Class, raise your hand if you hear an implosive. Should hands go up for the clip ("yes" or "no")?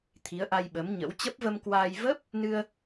yes